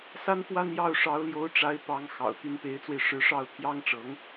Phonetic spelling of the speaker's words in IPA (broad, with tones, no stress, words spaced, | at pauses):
sa˥nfwa˥˧n jɑ˥˩ʊ̯ ʂɑ˧˥ʊ̯ljo˧˥ʊ̯ʈ͡ʂa˧˥ɪ̯ pɑ˧˥ŋ xɑ̰˨˩ʊ̯t̪y˧˥npe˧˥ɪ̯t͡swe˧ɪ̯ ʂɻ̩˧˥ʂɑ˥˩ʊ̯ t̪ʰjɑ˥ŋʈ͡ʂɤ˧˥ŋ